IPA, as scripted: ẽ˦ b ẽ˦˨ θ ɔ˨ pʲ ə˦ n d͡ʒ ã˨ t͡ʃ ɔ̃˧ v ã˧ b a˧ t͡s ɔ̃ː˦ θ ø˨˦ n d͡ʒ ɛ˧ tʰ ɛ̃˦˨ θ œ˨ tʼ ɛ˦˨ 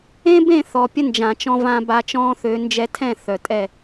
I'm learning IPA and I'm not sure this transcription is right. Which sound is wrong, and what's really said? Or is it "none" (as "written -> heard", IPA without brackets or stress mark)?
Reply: t͡s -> t͡ʃ